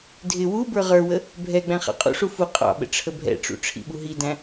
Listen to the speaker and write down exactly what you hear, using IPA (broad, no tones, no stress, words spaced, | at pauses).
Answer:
dʱɪ wu bə˞ʁə˞wə | bʱɛ ɡ͡bæ̃χɑ̰qʼṵʂu fu qʼɑ̰ɓə̰ ʈ͡ʂʰəbʱɛ̰ʈ͡ʂṵ ʈ͡ʂʰḭɓuɦidæ̃